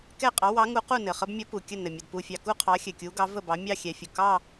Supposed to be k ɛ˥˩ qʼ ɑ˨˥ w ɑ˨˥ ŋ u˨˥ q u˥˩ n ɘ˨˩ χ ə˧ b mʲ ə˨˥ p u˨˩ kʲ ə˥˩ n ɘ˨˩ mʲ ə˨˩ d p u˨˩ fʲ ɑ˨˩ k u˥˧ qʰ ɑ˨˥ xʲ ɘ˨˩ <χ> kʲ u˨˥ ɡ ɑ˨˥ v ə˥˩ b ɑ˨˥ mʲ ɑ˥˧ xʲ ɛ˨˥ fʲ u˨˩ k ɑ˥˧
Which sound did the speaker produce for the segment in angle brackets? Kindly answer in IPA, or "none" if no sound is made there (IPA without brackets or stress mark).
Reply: none